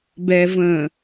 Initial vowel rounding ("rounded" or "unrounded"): unrounded